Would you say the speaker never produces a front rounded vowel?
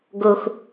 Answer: yes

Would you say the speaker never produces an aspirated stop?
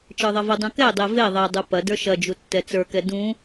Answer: yes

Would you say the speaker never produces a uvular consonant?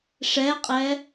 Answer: no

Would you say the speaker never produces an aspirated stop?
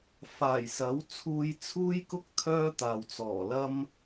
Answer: no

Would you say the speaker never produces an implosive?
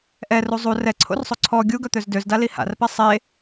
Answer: yes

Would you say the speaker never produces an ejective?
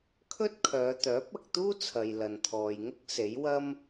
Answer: yes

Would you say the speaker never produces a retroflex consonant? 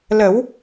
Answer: yes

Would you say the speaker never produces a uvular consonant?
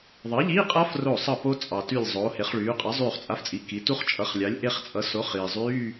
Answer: no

